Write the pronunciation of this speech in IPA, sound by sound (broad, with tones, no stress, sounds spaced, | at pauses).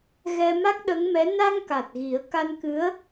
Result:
ɣ ɛ˧ m a˦˥ k̚ ɗ ə˧˥ ŋ m ɛ˧˥ n a˧ ŋ k a˨˩ t̚ ɣ i˨˩˦ ə̯ k a˧ n k ɨ˧˥ ə̯